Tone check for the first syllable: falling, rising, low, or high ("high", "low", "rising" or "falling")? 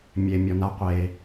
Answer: low